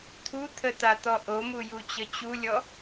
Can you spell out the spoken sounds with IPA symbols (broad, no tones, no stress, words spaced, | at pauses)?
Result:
t̪ʰut̪ʰət̪at̪ɔ ʔomujut͡ɕə t͡ɕulʲɔ